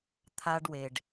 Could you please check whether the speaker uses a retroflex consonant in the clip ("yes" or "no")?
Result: yes